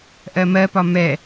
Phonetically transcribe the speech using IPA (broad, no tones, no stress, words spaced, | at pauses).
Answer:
ʔɜmɜpɒ mɛ